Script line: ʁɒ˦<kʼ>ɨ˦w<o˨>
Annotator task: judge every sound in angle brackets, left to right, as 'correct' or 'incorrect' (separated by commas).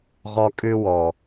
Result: correct, incorrect